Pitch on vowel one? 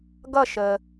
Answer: falling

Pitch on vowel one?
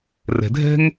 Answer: low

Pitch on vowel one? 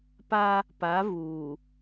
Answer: high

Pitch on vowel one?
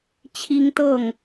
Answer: high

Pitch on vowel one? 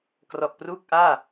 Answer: low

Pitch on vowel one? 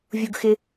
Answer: low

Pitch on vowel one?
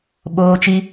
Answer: high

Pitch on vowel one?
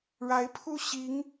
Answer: rising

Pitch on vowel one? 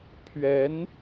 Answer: rising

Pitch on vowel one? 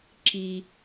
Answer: high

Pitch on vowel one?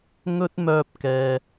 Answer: high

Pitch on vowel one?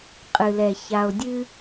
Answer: low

